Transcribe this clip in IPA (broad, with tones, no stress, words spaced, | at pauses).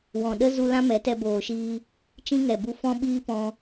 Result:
wɔ̃˨ɗə˦ zu˦ lã˦mɛ˨˦tɛ˧ boː˨ʃiː˧ | t͡ʃĩ˦ŋɛ˨bu˧ fɔ̃˦ɓiː˦pɔ̃˧